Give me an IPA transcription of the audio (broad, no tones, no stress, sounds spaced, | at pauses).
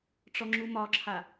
ʈ͡ʂ ɔ ŋ͡ǁ u m ɒ ǁʰ a